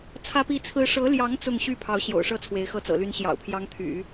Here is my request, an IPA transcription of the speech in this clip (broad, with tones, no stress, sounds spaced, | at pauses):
t͡sʰ ä˥ p i˥˩ t͡sʰ ɹ̩˥ ʂ ɤ˧˥ l j ɑ˧˥ ŋ t͡s ʊ˥˧ ŋ ɕ y˥˩ pʰ ɑ˧˥ ʊ̯ ɕ j o̰˨˩ ʊ̯ ʂ ɤ˥ t͡sʰ w e˧˥ ɪ̯ x ɤ˥˩ t͡s ɤ̰˨˩ l y˧˥ n ɕ j ɑ̰˨˩ ʊ̯ pʰ j ɑ˧˥ ŋ t̪ʰ y̰˨˩˦